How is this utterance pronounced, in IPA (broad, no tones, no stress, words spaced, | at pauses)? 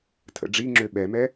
tʰə̰ɖ͡ʐiŋ͡ǁø ɓɛmɛ